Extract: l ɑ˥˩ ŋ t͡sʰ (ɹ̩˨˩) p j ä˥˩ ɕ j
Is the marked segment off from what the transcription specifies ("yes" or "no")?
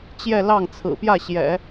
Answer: no